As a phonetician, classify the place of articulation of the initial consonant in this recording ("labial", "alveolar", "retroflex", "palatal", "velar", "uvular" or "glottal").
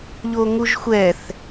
palatal